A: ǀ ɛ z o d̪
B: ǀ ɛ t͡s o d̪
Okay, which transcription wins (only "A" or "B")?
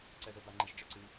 A